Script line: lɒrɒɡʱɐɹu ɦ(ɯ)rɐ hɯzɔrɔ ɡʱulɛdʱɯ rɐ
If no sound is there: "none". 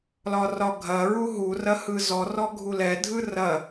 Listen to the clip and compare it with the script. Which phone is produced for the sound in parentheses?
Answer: u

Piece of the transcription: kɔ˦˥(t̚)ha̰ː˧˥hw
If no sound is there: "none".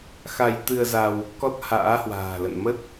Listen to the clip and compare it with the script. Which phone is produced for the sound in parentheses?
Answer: t̚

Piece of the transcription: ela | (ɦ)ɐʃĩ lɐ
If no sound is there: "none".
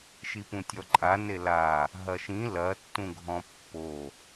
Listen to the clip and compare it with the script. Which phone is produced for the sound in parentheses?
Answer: ɦ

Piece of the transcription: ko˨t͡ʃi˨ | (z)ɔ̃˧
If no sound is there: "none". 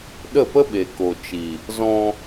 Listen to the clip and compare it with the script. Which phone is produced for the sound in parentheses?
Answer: z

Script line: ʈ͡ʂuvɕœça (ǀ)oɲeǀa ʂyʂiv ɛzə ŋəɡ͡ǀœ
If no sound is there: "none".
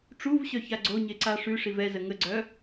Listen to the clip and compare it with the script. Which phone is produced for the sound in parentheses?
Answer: ɡ͡ǀ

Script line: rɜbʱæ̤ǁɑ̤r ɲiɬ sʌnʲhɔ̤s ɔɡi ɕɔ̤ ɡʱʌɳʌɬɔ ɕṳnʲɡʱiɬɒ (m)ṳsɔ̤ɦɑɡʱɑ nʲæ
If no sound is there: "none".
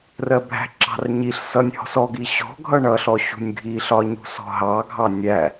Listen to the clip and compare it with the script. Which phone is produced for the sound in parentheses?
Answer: ɲ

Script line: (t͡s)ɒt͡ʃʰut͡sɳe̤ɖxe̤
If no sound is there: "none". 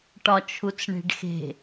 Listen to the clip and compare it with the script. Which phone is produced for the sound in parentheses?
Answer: ʈ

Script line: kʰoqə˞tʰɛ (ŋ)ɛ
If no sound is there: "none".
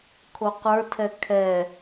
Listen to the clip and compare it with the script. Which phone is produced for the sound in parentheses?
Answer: kʰ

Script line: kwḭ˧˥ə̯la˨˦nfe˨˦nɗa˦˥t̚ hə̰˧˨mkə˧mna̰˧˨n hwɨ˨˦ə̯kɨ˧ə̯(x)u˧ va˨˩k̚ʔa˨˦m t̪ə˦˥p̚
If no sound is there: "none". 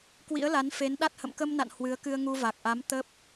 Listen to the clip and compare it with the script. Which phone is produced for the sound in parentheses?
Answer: ŋ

